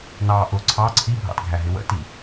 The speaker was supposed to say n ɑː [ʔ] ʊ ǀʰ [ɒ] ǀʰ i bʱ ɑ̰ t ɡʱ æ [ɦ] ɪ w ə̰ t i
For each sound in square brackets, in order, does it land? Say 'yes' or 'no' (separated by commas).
yes, no, yes